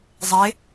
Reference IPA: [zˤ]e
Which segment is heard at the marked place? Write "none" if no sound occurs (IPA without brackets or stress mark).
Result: zˤ